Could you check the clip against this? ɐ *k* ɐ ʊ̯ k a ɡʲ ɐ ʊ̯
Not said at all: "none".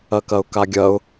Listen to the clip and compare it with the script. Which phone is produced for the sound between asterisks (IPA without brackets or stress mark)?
k